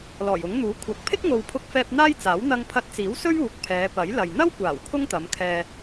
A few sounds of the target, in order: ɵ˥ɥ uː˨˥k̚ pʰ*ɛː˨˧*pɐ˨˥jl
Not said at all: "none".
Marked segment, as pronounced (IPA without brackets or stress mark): ɛː˨˧